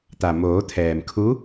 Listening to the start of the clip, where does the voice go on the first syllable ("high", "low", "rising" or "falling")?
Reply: low